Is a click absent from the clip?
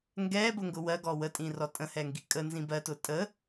yes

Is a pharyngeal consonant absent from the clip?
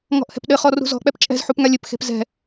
no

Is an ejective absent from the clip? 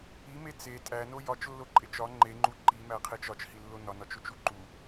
no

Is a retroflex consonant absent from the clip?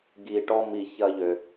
no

